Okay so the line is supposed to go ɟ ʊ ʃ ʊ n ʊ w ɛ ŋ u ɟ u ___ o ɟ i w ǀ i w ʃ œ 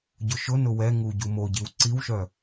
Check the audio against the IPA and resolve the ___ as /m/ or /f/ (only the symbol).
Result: m